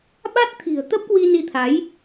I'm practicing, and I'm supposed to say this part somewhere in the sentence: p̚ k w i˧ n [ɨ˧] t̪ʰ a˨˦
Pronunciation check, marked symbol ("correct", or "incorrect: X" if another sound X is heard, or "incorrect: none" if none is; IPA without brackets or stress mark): incorrect: i˧